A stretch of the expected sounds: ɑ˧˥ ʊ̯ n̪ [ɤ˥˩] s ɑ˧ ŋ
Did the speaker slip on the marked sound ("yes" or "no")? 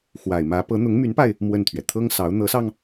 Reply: yes